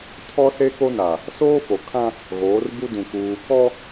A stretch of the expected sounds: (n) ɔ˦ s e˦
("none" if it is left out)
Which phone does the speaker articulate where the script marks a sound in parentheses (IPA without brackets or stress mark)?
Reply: tʰ